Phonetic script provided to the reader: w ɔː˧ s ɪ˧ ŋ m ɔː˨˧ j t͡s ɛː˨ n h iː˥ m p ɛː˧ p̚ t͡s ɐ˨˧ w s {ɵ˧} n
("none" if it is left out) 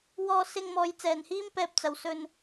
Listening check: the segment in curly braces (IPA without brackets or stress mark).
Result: ɵ˧